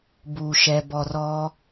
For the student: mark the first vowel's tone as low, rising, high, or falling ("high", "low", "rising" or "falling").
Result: low